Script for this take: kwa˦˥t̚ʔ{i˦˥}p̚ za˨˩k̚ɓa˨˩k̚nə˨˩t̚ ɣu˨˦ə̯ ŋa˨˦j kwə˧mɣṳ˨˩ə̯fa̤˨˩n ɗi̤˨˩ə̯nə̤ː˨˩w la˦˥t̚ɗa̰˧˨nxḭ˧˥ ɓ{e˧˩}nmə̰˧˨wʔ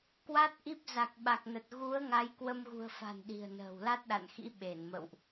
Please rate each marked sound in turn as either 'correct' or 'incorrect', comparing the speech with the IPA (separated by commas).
correct, correct